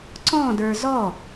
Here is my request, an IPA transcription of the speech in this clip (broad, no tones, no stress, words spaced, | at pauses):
ǀɔ̃ də˞zɔ